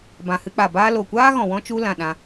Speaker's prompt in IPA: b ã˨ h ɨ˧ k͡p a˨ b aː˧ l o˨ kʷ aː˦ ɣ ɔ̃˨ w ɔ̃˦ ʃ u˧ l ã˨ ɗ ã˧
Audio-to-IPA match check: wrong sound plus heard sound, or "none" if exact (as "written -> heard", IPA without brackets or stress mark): ʃ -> t͡ʃ